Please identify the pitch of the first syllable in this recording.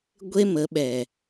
high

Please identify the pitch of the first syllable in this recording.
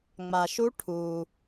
low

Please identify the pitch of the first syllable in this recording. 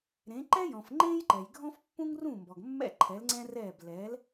rising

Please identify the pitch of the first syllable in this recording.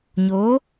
rising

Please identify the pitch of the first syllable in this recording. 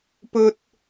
high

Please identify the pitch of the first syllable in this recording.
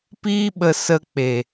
high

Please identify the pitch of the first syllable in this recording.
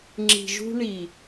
low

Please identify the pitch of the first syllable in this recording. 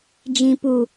low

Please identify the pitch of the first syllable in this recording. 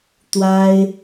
high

